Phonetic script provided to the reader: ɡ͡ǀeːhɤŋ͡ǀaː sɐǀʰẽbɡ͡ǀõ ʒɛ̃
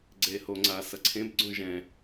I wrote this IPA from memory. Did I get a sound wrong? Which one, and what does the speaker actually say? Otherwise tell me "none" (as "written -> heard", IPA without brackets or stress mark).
ɤ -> o